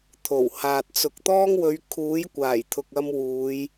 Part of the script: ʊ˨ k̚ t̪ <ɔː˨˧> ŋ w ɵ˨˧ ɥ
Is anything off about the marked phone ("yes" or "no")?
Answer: yes